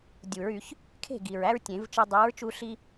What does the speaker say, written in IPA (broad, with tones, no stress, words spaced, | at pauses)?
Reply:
dʲu˨˩˦ɹ y˨˩˦ç | kʰe̤˥˩ ɡi˨˩ɹæ˥ɹ tʲẽ˨˩˦vt͡ʃɯ˧ dˤi˨˥ɹt͡ʃu˧ ɬi˥